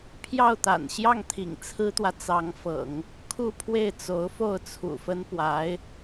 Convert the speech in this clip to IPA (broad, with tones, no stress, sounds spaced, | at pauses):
pʰ j ɑ˥˩ ʊ̯ t̪ a̰˨˩ n ɕ j ɑ˥˩ ŋ t̪ʰ ḭ˨˩ ŋ t͡sʰ ɹ̩˥ t̪ w ä˨ t͡s ɑ˧˥ ŋ f ɤ̰˨˩˦ ŋ | kʰ u˥˧ pʰ w e˥˩ ɪ̯ t͡s o˧˥ ʊ̯ f o˥˩ ʊ̯ t͡sʰ ṵ˨˩ f ə˥ n p w a˧˥ ɪ̯